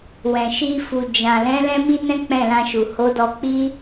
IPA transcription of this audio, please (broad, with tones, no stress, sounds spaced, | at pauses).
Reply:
w ɛ̃˨ ʃ i˧ f u˨ d͡ʒ ã˨ l ɛ̃˨˦ l ɛ̃˦ m i˦ n ɛ̃˦ k͡p ɛ̃˦˨ l ã˧ ʃ u˨ h o˨˦ d ɔ˧ k͡p i˦